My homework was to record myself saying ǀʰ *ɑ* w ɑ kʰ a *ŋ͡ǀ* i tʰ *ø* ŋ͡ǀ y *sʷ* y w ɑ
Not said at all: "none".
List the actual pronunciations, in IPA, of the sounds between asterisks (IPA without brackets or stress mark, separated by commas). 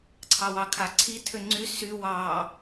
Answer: ɑ, ǀʰ, ø, s